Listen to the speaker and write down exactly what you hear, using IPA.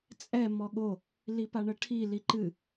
t͡sʼ ɛ m ɔ ɠ o | l i p a ɳ ə ʈʰ i l i ǃ ɨ

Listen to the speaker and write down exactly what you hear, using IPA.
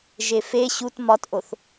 ʒ e f e ɕ u t m ɒ t ʔ o θ

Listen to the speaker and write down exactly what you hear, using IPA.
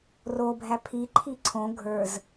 r o bʱ æ pʰ i ǃʰ i ǀʰ õ ɡʱ ə˞ z

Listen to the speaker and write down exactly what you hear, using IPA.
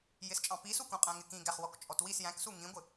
j ɪ s t͡ʃʼ ɑ̃ p i s u k ũ qʼ æ̃ ŋ ɪ k ĩ ɡ æ χ w ɔ k t͡ʃʼ ɔ t w i s j æ̃ k s u ŋ ĩ ɡʷ ɪ

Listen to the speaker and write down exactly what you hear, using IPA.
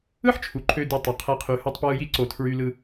ɯ˥ ħ t͡ʃʰ u˩ ǃʰ ø˨ d y˨ tˤ ø˩ qʰ æ˨ qʰ y˩ h u˨ tˤ p w ɯ˨ j i˦ ǀ o˩ tʰ ɹ y˨ l ɯ˨

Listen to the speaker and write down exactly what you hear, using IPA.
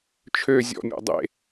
t͡ʃʰ ø zʲ ɔ̰ mʲ ɔ̰ dˤ ḛ

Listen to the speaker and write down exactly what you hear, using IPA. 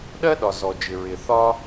ɗ ɜ˥ ɗ ɒ˩ z ɔ˩ d͡ʒ ɪ˩ ɹ ɪ˩ θ ɒ˥

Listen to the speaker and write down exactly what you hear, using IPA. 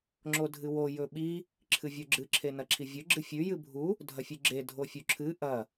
ŋ͡ǁ o dʱ ɨ w o j ɵ ɓ i | ǁʰ ɨ vʲ o ɡ͡ǁ ɨ ǁʰ e n ɐ ǁʰ i vʲ ɵ ɡ͡ǁ ɨ fʲ ʉ j ɨ bʱ u | dʱ ɐ fʲ ʉ ɡ͡ǁ e dʱ o fʲ u ǁʰ ɨ ʔ ɐ

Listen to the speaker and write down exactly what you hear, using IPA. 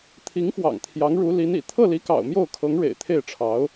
t̪ʰ i˧˥ ŋ f w ɑ̰˨˩ ŋ t̪ʰ j ɑ˧˥ ŋ ɻ u˧˥ l i˧˥ n ḭ˨˩ t̪ʰ ɤ˥˩ l i˧˥ k ɑ̰˨˩ ʊ̯ m j o˥˩ ʊ̯ kʰ ɤ˧˥ ŋ ɻ ḛ˨˩ ɪ̯ t̪ʰ e˥˩ ɪ̯ ʈ͡ʂʰ ɑ˧˥ ʊ̯

